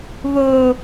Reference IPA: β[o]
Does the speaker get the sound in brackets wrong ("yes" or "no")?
no